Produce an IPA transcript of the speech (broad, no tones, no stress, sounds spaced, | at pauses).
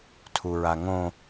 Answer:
tʰ u ɹ a ŋ õ